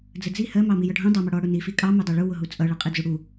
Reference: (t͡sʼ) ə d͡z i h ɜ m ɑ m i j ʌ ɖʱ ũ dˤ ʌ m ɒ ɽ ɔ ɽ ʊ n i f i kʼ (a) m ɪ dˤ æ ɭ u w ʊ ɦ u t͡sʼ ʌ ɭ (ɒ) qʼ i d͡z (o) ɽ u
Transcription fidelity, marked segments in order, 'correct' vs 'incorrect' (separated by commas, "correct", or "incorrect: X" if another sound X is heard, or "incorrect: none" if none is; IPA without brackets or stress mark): incorrect: d͡z, incorrect: ɑ, incorrect: ʌ, incorrect: u